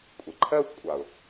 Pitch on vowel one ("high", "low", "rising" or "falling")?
low